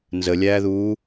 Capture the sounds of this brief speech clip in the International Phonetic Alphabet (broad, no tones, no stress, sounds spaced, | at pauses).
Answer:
n z ə lʲ æː ð uː